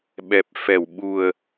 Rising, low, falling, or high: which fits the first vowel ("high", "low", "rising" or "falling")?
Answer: low